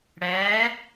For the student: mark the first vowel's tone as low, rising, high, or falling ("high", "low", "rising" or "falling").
rising